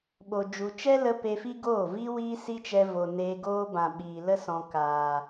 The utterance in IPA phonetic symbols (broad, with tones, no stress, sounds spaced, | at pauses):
ɓ o˨ d͡ʒ u˨ t͡ʃ ɛ˦ l ə˧ p e˧ f i˦ ɡ oː˦˨ v iː˦ w iː˦ s i˦ t͡ʃ ɛ˧ v o˨ n eː˧ ɡ oː˦ b ã˨ ɓ iː˨ l ə˦ s ɔ̃˨ k aː˨